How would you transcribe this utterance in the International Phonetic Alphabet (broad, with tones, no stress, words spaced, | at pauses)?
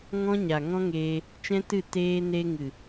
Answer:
ŋɔ̃˦ɲa˨ŋɔ̃˦ŋeː˧ | t͡ʃɛ̃˦tɨ˦˨ teː˧ne˧ŋɨ˨